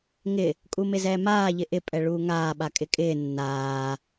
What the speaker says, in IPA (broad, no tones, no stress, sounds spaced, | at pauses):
ŋ ɪ | kʼ u m ɪ z ɛː m aː ʎ ɪ ʔ ɪ pʼ ɛ ɭ uː ŋ aː ɓ a kʼ ɪ kʼ ɪː nː aː